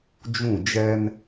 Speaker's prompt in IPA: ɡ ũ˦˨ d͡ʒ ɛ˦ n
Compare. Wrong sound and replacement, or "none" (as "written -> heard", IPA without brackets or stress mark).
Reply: ɡ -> d͡ʒ